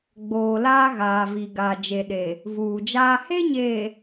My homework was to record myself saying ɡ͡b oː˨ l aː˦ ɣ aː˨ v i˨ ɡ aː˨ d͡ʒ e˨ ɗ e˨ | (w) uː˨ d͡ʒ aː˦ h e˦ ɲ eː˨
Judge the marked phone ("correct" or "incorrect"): incorrect